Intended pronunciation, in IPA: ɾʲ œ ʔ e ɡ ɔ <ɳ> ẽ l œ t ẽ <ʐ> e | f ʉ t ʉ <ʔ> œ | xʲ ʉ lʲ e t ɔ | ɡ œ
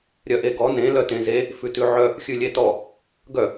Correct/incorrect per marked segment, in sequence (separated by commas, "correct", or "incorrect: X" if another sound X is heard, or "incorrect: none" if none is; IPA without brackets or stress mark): incorrect: n, incorrect: z, incorrect: ʕ